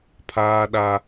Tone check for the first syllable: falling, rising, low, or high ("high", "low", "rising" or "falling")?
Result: high